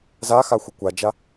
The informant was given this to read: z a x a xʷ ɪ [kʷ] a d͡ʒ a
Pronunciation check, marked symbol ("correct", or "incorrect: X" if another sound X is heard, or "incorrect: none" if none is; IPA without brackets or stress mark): correct